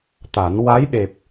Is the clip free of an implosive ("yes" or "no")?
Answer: no